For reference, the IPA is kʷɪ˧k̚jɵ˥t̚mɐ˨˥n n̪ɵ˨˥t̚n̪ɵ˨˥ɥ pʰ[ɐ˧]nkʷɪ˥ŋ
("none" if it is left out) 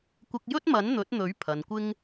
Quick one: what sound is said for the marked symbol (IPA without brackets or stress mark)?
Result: ɐ˨